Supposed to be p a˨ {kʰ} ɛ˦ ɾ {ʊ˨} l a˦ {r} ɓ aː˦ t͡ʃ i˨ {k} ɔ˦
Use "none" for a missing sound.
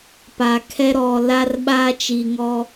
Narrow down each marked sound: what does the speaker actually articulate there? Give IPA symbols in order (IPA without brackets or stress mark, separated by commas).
kʰ, ɔ˨, r, ŋ